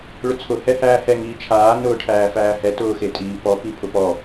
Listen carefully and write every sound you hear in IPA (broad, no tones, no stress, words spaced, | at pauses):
ɭʊt͡sʰʊ hɛhæːhɛ ŋiːt͡ʃʰaː nʊːʈʰæːfæːhɛ tʊːxetʼiːpɔ pipʰʊpɔ